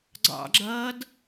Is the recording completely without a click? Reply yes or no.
no